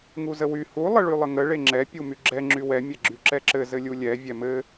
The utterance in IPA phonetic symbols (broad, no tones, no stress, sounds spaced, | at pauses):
ŋ u z ə w y h u lˠ ə ɭ y lˠ ə ŋ ə ɭ e ŋ͡ǁ ɛ pʲ u m y ɡ͡ǁ ɛ ŋ͡ǁ y w ɛ mʲ ɛ ɡ͡ǁ y ǁ ɛ ǁ ɘ z ɘ lʲ u lʲ ɛ vʲ ɛ m ɘ